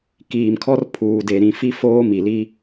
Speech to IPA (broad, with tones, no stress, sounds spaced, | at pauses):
k iː˨ m kʰ ɔ˦ r pʰ uː˨ d e˨ ɾ ĩ˨ f i˦ f oː˦ m i˨ l i˦